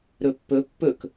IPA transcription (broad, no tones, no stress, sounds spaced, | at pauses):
ɾ ɵ pː ɵ pː ɵ k